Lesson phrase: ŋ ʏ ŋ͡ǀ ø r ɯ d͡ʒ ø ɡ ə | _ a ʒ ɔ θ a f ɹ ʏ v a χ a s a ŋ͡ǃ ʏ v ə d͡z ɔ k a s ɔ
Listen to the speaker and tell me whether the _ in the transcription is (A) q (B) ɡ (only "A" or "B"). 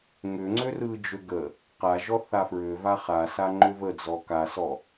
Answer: A